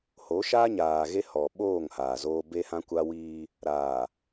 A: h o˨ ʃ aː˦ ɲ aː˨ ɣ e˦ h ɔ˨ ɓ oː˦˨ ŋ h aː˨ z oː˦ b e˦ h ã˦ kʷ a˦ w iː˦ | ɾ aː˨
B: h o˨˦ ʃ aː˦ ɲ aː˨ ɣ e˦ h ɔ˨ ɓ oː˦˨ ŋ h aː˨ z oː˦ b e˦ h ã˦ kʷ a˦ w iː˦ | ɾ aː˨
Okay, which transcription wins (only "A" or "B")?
B